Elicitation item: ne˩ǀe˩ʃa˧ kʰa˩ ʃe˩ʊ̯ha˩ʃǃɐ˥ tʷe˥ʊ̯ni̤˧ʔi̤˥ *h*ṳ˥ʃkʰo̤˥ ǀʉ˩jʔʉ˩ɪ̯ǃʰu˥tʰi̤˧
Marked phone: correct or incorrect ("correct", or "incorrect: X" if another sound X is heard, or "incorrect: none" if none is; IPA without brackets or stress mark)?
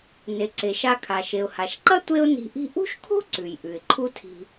incorrect: ʔ